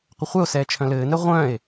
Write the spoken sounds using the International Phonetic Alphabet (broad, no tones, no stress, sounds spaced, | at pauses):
qʷ ə χʷ ɛ o̯ s ɛː t͡ʃʰ œ̃ l ɘː n ɛ ʁʷ œ̃ e̯